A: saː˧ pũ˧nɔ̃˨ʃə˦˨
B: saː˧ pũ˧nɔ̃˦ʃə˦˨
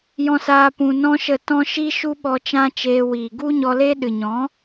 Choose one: B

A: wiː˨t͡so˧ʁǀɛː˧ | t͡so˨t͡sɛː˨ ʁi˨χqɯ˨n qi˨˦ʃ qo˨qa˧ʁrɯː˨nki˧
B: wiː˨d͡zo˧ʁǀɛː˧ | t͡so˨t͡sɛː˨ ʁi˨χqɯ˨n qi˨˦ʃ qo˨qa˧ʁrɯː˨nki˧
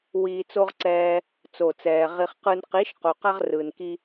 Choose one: A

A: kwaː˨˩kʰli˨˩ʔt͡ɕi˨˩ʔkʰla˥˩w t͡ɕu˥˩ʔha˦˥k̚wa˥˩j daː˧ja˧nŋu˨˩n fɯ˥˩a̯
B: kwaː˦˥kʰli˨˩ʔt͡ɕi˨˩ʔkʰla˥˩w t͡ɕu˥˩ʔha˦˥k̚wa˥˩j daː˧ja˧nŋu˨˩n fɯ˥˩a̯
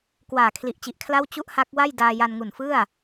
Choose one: A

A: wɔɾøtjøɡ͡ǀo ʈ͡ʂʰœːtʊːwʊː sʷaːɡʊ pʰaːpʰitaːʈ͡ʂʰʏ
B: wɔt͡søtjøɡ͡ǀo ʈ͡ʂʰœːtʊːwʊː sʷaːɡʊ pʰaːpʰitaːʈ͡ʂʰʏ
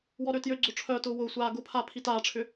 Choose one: A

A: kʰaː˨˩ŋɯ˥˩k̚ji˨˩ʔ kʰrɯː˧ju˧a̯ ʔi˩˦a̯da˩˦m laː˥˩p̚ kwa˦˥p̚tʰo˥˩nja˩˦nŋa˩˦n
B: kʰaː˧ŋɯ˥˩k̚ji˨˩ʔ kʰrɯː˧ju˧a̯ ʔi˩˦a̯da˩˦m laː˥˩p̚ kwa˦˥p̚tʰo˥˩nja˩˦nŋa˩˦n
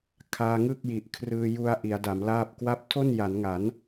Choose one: B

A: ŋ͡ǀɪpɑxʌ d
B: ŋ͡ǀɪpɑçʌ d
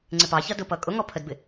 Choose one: B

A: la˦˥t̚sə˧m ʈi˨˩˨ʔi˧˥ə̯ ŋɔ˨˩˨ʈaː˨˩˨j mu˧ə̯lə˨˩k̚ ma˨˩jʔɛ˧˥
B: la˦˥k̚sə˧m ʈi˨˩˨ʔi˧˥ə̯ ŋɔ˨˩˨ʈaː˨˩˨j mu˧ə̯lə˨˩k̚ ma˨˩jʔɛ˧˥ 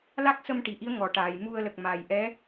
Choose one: B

